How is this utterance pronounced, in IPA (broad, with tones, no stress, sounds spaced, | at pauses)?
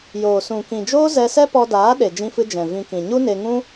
j oː˨ s ũ˨ k ĩ˨ d͡ʒ oː˦ z ɛ˧ s ɛ˦ p ɔ˧ d aː˨˦ ɗ e˨ d͡ʒ ĩ˧ f ɨ˧ d͡ʒ ɛ̃˨ v ĩ˧ k ĩ˨ ɲ u˦ n e˧ ŋ ũ˦